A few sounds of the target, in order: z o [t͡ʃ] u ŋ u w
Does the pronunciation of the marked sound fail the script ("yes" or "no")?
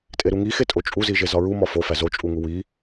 yes